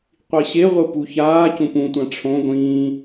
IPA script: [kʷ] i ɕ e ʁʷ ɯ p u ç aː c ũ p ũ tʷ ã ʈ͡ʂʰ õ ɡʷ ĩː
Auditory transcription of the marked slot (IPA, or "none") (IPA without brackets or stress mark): qʷ